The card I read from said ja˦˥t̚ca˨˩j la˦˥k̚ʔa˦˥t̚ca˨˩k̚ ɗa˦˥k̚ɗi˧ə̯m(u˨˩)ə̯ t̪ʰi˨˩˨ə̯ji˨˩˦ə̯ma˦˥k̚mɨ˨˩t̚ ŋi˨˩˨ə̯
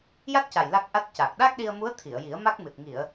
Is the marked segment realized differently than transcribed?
yes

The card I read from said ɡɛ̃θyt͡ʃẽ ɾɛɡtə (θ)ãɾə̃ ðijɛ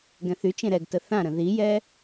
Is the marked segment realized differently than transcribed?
no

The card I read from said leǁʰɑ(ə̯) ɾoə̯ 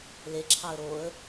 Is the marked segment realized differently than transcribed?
no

